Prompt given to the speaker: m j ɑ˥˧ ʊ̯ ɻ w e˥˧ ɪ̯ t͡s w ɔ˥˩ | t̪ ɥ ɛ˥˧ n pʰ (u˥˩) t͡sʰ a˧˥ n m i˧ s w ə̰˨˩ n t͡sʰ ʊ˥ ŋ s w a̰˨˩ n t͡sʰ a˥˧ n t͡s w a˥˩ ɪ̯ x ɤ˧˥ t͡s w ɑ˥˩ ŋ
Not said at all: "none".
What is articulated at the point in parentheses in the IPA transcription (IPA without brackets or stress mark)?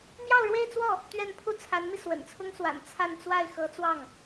u˥˩